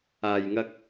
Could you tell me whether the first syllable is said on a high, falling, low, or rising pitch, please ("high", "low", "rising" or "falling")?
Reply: low